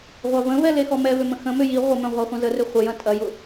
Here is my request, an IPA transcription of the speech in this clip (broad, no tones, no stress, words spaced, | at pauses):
ʁʷavə̃vɛ lexɔmɛvʏ mə̃xə̃mʏ ji ʁʷəmœ̃ ʁʷaχʷɐ̃zərʏ χʷəjɐ̃ tʼɐjʊ